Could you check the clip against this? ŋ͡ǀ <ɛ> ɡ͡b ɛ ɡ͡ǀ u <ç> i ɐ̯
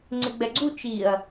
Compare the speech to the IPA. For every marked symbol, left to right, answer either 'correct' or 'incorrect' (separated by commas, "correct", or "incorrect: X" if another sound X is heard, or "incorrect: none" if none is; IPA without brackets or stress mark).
incorrect: ɪ, incorrect: t͡ʃ